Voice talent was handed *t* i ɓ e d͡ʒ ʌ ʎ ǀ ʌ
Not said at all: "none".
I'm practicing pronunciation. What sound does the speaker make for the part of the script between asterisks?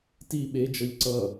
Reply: t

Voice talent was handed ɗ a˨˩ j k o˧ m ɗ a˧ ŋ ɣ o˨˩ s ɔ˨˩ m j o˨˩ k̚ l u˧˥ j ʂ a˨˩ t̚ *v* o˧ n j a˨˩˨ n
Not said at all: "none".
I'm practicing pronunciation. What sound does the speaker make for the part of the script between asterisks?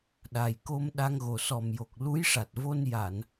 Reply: v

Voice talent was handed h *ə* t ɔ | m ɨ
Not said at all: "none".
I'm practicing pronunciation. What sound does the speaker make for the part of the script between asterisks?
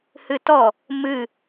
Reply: ɨ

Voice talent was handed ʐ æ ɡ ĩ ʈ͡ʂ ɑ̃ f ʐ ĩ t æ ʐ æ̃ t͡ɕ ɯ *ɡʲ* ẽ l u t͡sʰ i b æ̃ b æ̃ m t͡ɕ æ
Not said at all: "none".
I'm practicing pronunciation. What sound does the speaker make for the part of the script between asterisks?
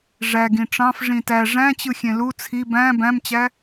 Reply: xʲ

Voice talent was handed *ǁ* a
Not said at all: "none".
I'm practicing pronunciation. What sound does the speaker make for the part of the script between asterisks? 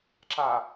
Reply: ǁ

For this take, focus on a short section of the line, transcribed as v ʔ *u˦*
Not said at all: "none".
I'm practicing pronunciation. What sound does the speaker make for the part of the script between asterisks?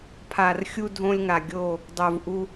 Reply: u˦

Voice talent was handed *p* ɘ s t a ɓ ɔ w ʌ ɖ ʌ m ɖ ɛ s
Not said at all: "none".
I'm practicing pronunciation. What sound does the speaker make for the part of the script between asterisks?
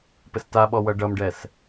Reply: p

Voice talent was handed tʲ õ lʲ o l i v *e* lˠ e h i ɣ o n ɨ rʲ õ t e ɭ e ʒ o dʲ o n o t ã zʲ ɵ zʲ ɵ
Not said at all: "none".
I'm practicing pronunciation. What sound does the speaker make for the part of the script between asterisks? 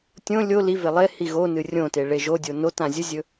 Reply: e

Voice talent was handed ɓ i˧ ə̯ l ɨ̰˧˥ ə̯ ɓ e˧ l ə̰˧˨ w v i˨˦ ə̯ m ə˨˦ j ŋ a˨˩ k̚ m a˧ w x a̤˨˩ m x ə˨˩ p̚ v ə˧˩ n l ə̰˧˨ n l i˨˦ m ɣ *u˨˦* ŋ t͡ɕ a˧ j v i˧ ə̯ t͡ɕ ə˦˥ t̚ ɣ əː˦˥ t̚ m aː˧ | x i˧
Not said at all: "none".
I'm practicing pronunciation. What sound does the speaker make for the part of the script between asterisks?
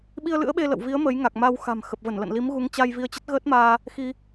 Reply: u˨˦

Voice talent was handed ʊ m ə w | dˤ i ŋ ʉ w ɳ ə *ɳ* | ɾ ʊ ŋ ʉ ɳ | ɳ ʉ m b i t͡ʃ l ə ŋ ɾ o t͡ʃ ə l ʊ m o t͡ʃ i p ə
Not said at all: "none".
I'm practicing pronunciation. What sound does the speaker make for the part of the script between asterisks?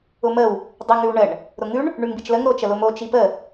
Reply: ɳ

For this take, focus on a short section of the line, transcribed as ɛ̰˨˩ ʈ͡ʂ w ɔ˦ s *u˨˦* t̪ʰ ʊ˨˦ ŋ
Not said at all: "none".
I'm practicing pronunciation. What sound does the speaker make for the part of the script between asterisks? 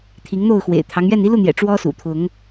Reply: ṵ˨˩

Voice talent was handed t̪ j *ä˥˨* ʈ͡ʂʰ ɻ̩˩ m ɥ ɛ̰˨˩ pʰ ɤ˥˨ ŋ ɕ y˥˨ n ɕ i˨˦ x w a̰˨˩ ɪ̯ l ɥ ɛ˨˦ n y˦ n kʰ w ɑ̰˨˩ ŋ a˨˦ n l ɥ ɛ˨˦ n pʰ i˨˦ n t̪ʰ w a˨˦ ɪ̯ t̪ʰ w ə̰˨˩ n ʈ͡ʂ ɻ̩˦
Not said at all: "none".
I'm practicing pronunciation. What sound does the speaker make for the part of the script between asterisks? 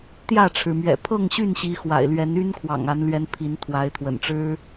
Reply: ä˥˨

